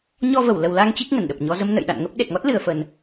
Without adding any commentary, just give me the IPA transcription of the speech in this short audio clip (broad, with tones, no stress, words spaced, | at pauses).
ɲɔ˧və˧˩wlə˨˩wla˧ŋ t͡ɕi˦˥k̚ŋə˧˩nɗə˨˩p̚ɲɔ˧ zə˧mnə̰˧˨j ɗa̰˧˨nŋə˦˥p̚ ɗe˨˩t̚ŋɔ˦˥t̚lɨ˨˩ə̯fə˨˩n